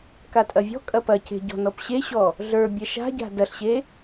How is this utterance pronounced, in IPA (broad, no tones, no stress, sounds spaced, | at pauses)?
k a tʼ ɐ vʲ ɔ̤ kʼ ɐ p ɐ c e̤ ɟ ɔ̤ n ɔ p ɕ e ɕ ɔ | ɮ ə˞ bʲ ɐ ʃ a̤ ɟ a̤ d ɐ ɬ ɕ e